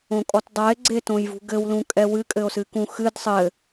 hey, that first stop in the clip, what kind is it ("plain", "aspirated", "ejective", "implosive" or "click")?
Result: ejective